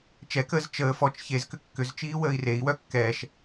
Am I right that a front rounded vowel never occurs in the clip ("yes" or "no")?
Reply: no